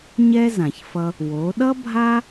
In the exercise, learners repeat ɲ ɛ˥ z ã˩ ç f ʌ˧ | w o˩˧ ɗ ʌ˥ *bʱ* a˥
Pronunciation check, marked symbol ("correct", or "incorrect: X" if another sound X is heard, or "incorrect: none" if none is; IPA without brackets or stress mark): correct